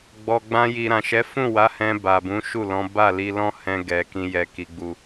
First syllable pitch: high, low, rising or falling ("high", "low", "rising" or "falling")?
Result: low